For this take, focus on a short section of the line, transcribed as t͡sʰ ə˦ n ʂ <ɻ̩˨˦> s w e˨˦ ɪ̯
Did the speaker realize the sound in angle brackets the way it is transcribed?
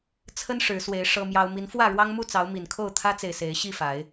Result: yes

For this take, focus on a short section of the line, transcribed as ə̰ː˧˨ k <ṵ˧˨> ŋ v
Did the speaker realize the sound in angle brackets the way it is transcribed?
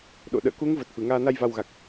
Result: no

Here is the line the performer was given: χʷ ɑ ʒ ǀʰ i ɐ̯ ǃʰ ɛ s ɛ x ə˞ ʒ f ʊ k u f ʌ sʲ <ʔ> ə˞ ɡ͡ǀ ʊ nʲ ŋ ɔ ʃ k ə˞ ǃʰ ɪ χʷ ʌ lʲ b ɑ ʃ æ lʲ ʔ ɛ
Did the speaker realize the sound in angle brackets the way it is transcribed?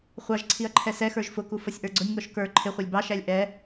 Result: yes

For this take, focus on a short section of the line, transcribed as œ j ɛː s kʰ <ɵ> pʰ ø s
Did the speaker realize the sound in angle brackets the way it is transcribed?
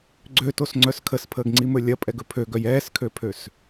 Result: no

